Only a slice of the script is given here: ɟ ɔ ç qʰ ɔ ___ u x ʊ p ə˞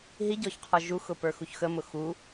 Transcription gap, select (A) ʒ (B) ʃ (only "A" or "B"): A